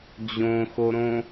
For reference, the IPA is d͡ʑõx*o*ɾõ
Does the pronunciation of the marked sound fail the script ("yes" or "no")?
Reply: no